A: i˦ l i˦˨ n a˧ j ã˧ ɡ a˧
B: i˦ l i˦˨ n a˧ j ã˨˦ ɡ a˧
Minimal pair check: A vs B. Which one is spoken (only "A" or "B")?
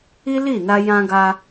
A